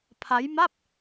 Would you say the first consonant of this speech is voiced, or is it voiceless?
voiceless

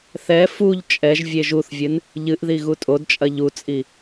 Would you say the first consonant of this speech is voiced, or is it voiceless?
voiceless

